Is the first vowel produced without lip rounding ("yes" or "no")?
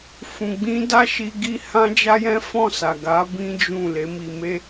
no